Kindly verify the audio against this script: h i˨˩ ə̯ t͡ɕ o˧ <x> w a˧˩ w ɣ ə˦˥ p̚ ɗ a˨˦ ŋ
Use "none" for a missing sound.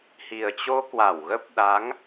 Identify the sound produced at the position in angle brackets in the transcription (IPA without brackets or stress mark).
k